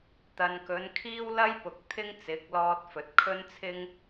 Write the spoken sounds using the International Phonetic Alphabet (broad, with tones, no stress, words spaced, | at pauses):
t̪ɐ˨nkɵ˨˧n kʰiː˥wlɐ˥jpʊ˨k̚ t̪ʰɪ˥ŋt͡sɪ˨˥k̚lɔː˧t̚fɵ˨t̚ kʰɵ˥nt͡sʰɪ˥ŋ